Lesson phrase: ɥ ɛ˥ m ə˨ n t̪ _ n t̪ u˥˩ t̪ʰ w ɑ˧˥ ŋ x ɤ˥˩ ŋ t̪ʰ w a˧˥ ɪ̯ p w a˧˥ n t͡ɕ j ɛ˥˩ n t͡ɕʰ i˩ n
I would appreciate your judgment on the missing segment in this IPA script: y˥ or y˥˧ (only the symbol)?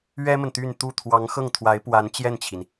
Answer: y˥˧